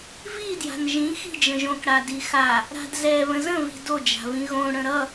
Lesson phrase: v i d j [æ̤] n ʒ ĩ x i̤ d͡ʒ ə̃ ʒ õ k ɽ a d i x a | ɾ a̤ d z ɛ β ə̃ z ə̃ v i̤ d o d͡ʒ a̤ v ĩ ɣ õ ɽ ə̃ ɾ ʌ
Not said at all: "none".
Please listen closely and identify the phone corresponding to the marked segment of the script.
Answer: a̤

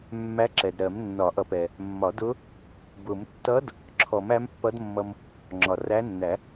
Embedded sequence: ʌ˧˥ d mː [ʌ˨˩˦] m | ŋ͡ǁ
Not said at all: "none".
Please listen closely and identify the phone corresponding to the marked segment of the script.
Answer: ʌ˧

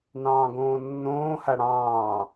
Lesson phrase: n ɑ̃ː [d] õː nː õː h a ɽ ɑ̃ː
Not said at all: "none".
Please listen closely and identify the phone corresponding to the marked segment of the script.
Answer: ɡ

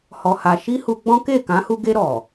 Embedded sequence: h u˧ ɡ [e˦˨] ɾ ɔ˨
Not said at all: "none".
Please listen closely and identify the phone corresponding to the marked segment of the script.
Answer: e˧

